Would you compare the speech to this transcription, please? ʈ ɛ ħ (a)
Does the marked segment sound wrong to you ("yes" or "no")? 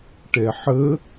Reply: yes